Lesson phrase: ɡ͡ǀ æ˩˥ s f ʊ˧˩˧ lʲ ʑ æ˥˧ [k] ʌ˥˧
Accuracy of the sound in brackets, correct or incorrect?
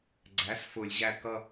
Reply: correct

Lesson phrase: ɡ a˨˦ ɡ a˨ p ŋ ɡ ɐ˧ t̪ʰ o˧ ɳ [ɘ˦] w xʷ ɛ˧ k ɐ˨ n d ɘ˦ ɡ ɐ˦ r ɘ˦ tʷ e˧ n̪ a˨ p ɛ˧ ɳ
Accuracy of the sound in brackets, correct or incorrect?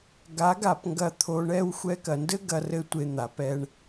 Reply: incorrect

